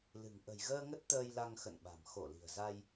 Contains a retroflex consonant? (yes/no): no